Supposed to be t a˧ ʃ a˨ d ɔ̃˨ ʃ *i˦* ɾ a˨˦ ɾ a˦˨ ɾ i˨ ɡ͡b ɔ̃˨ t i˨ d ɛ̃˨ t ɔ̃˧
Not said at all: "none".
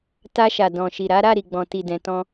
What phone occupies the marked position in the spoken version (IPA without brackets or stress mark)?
i˨